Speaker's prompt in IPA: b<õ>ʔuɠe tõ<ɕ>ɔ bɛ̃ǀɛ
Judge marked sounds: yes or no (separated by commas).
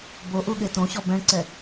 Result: no, yes